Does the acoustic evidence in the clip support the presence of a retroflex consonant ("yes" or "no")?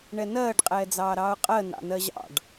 yes